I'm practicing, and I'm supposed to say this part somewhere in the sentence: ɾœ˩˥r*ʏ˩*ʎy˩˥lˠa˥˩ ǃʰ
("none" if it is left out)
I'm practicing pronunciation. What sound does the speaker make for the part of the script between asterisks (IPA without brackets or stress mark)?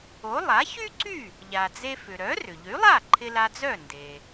ʏ˩